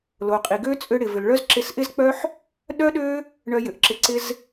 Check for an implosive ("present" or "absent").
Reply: present